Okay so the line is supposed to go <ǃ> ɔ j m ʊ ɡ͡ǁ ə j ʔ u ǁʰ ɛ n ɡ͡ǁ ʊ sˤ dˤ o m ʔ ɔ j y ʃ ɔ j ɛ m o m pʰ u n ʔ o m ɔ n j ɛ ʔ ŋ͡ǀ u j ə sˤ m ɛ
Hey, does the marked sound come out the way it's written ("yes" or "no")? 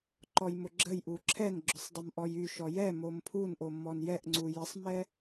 yes